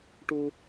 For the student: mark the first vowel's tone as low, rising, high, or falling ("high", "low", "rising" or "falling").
high